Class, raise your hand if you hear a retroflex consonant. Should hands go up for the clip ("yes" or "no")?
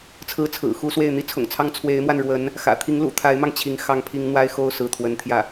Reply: yes